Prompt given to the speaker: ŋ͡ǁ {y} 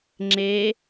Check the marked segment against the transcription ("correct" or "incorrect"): incorrect